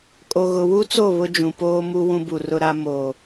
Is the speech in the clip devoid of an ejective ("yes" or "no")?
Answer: no